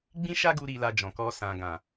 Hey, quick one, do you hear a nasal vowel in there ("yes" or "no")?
yes